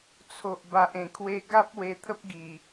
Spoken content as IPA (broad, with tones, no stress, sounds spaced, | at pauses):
t͡sʰ o˨ ʔ b a˨ ʔ ẽ˨˩ kʰ w e˧ ɡ a˦ p̚ w e˧ t̪ʰ ə˦ p̚ ɡ i˨˩